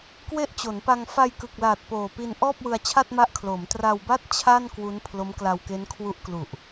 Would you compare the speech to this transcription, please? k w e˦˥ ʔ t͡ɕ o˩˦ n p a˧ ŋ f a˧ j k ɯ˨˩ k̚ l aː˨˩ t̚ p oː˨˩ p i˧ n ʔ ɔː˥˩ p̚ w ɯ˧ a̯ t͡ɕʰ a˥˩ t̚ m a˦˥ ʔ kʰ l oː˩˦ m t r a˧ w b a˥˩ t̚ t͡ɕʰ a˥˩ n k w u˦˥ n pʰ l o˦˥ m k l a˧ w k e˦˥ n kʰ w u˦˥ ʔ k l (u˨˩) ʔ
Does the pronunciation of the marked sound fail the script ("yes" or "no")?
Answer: no